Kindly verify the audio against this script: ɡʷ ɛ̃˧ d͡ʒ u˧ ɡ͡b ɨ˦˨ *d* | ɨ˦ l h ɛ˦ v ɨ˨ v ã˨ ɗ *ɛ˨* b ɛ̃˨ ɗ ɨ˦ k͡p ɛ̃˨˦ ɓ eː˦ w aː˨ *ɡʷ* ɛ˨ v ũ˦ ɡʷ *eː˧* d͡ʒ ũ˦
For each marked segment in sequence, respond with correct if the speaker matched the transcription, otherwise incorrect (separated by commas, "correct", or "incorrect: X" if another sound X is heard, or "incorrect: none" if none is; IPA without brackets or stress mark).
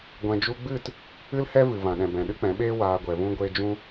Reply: incorrect: t, incorrect: ɛ̃˨, correct, correct